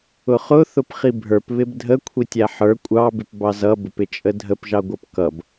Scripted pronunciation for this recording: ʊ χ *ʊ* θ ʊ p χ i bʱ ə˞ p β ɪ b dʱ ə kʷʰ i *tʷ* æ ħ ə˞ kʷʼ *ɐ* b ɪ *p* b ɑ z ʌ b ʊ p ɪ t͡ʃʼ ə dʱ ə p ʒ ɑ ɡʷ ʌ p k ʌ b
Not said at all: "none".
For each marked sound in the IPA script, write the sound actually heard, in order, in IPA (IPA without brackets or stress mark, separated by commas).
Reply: ʊ, tʲ, ɑ, p